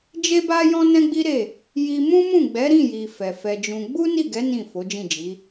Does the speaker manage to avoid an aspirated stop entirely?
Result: yes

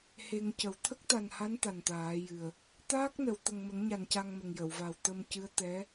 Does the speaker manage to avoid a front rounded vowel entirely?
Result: yes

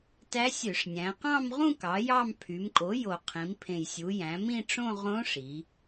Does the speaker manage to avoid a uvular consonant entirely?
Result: no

